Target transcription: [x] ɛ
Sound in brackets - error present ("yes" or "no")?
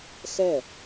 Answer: no